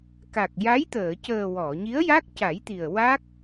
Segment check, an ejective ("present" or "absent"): absent